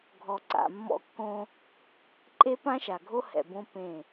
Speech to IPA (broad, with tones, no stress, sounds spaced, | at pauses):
ɡʱ ɔ˨ ǀ a̰˨ mː ɔ̰˦ kː õ˦ | ǃʼ e˦ p ã˦ ʃ a˨ ɡʱ o˦ h ɛ̰˨ b õ˦ p ẽ˦˨